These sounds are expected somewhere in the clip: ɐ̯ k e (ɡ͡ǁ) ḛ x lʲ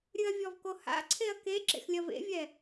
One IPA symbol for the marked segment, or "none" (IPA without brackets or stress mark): ǁ